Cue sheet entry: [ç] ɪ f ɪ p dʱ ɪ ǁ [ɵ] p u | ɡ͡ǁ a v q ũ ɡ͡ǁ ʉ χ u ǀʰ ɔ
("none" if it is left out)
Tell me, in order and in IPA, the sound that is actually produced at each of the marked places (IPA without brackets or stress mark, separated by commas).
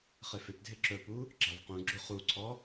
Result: χ, ɵ